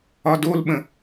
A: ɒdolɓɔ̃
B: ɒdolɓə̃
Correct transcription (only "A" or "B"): B